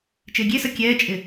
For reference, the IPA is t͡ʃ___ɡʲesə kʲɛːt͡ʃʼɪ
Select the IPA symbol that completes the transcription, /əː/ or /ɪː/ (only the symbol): ɪː